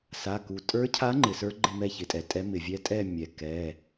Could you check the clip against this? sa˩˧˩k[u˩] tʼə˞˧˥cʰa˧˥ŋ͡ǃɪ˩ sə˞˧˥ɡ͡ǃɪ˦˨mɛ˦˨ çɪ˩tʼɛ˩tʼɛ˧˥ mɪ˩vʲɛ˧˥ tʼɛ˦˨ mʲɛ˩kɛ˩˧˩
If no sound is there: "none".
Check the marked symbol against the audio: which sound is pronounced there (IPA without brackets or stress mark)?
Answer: u˩